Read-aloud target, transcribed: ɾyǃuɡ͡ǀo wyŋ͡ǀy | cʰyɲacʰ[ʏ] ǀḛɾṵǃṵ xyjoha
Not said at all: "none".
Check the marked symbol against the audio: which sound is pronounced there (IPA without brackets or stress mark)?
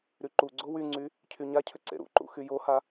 ʏ